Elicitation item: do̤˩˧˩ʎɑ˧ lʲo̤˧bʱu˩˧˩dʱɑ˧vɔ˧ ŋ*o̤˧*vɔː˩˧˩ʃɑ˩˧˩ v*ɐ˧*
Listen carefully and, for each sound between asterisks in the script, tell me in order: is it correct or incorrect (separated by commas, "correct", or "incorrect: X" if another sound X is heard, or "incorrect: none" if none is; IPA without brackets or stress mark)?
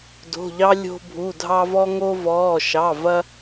incorrect: o˧, correct